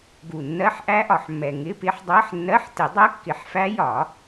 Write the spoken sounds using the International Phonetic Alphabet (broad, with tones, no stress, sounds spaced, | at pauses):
ɡ u˨˩ nː ɜ˧˥˧ ħ ʔ æ˦˥ ʔ ɒ˨˩ ħ mː ɛ˨˩ ŋ ɪ˧˥˧ p ɪ˦˥ ħ dˤ ɜ˧˥˧ ħ nː ɜ˧˥˧ ħ t ɪ˨˩˦ dˤ ɜ˦˥ kː ɪ˨˩˦ ħ f æ˦˥ j ɒ˨˩˦